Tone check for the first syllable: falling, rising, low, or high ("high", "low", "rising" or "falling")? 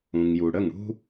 low